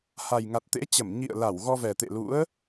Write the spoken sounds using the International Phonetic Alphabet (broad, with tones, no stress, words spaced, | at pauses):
ha˨˩jŋa˨˩t̚ t̪ḛ˧˥t͡ɕə˧˩m ɲḭ˧˨ə̯ la˧˩wɣɔ˧vɛ˨˩t̪ḛ˧˨ lṵ˧˥ə̯